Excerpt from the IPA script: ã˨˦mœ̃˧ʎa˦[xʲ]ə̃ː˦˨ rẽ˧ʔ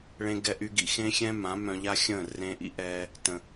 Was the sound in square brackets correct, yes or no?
yes